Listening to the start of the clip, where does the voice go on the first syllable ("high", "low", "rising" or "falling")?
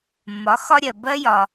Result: rising